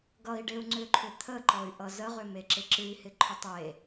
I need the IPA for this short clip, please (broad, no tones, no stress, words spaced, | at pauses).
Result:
ɡʌi̯ɖeu̯ ŋ͡ǀʏǃʰʏ t̪ʰəǃɔy̯ʔʌ zəʁʏmeǁɪ ǁɨi̯hɪǃʰʏtˤ e